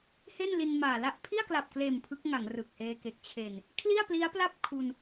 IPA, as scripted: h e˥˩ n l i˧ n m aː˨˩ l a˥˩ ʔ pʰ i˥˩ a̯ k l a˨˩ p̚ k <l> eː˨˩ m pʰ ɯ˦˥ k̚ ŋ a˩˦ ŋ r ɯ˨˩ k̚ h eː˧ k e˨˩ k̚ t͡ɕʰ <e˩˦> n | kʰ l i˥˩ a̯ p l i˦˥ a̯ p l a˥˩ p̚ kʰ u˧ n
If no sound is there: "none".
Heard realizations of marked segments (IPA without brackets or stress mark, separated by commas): l, e˨˩